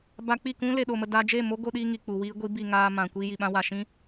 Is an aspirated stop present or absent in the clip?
absent